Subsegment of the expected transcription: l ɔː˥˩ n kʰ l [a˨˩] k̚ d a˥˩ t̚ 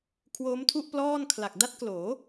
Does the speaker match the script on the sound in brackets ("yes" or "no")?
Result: yes